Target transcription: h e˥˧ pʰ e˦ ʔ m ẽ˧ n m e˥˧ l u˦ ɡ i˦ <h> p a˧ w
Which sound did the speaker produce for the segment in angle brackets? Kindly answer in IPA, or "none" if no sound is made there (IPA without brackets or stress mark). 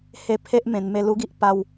ʔ